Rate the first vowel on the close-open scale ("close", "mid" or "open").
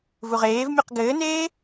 close